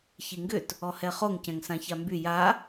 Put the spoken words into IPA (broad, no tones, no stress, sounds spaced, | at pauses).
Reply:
ç i ŋ ɡ ʏ t | ɔ h ɛ χ o ŋ c ɛ̃ ŋ s ã ç a m b y j a